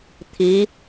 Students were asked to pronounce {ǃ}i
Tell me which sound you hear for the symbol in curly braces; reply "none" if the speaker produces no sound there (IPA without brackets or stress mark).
t̪ʰ